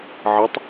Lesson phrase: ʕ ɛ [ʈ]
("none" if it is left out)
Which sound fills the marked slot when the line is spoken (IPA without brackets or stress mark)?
tˤ